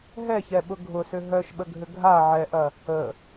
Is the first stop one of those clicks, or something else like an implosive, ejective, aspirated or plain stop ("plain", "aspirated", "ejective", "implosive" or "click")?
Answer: implosive